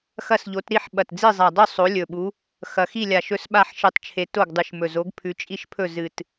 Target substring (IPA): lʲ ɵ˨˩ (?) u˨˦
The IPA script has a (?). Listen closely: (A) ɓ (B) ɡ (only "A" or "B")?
A